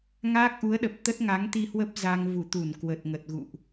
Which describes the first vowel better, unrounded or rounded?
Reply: unrounded